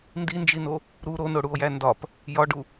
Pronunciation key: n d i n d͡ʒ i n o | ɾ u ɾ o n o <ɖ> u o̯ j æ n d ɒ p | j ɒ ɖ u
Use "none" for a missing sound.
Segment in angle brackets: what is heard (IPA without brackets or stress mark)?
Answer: ɽ